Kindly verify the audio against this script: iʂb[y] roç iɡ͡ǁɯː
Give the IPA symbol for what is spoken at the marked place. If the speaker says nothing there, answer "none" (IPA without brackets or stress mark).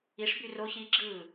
y